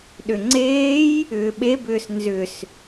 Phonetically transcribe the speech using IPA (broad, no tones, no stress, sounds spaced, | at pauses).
ɗ ʏ ŋ͡ǀ eː j | ʏː ɓ e b ʏː s n z ʏ s